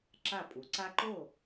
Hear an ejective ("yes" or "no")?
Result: yes